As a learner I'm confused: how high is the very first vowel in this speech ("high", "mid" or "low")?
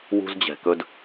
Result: high